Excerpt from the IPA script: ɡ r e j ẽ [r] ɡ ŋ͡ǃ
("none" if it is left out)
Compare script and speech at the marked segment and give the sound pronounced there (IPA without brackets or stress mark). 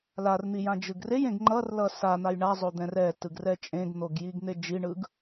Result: none